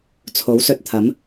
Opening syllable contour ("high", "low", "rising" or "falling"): rising